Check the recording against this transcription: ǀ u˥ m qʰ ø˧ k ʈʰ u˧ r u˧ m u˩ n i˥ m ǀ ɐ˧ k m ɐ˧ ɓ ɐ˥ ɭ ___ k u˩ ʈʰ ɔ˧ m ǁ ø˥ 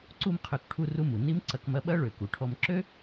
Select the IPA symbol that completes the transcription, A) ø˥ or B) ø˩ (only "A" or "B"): B